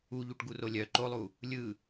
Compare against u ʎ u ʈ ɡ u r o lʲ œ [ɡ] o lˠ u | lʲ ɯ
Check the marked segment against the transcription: incorrect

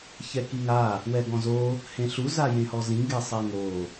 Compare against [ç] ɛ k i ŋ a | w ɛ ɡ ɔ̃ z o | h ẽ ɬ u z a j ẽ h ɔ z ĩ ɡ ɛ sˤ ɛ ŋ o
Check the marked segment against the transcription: correct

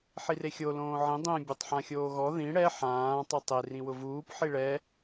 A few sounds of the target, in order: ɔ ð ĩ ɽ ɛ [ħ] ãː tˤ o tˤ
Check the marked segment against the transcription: correct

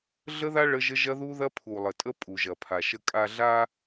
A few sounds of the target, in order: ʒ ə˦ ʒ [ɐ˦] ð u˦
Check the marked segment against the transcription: correct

